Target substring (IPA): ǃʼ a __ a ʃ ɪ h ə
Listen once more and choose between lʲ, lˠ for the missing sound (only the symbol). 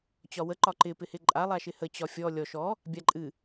lˠ